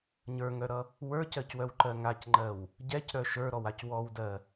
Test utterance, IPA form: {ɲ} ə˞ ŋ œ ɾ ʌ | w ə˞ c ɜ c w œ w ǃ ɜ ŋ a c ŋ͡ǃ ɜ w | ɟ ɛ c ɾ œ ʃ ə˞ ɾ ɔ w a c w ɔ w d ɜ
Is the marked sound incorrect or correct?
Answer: correct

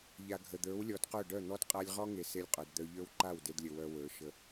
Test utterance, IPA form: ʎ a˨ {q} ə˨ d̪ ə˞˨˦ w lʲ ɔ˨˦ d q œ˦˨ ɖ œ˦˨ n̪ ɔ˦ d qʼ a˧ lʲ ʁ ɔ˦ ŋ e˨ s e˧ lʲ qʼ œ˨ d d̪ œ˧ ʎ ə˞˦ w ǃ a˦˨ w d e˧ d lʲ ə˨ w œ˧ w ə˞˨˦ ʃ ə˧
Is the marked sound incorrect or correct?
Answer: incorrect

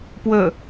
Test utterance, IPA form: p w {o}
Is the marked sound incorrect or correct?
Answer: incorrect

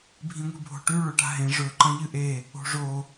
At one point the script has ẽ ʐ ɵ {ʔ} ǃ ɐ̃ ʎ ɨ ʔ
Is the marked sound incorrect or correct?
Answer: incorrect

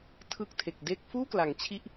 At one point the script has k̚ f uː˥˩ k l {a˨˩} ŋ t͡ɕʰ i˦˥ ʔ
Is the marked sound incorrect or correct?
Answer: incorrect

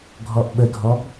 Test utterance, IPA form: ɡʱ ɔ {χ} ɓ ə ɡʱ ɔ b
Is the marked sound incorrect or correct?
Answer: incorrect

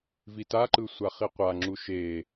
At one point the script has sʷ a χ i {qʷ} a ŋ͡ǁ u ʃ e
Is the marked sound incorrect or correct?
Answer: correct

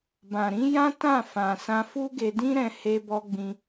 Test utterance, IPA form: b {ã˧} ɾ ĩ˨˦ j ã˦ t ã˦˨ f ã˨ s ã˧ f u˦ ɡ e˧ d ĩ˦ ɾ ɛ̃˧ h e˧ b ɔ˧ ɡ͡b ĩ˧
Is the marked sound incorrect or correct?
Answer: incorrect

